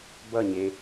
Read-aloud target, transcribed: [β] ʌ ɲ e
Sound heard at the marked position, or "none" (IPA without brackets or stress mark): b